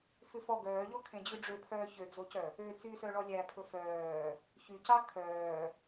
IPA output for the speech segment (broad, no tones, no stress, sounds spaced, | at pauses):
f ʉ f ɔ ɡ œː ʎ ɔ kʰ ẽ d͡ʑ ʉ ɖ͡ʐ ø pʰ œː ç ø d͡z o c œ | ø t͡s yː s œ ɭ ɔ lʲ æ pʰ ɵ f œː | ç y c ɑ kʰ œː